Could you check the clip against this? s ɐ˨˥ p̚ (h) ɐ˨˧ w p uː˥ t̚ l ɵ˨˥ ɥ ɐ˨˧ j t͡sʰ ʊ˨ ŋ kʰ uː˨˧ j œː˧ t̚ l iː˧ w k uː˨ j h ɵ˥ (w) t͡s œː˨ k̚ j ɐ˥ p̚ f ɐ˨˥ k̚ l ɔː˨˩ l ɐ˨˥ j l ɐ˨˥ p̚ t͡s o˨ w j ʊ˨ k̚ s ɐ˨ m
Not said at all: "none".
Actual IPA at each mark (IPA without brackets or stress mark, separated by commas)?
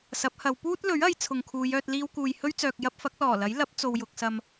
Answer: h, ɥ